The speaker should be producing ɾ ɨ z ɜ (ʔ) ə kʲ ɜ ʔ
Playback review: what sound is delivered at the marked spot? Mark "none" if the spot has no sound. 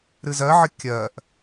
ʕ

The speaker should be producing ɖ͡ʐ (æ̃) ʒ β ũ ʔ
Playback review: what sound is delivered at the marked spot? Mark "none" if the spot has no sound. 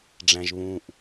æ̃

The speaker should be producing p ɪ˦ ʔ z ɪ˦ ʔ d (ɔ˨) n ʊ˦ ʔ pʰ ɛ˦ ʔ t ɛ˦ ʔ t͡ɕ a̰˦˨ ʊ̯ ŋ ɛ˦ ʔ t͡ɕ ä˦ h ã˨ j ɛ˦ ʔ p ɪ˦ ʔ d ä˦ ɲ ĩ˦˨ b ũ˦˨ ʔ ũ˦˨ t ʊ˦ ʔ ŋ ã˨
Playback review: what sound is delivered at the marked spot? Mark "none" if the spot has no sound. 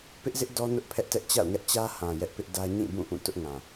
ɔ˦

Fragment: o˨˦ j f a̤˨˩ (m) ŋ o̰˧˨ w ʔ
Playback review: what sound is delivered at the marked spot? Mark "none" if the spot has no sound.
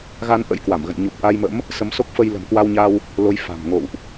m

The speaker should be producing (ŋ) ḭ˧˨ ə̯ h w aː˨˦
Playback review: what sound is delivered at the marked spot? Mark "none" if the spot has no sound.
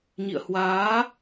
ɲ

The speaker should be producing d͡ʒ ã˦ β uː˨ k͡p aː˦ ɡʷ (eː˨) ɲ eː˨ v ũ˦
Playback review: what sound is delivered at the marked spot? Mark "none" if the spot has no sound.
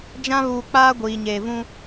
iː˨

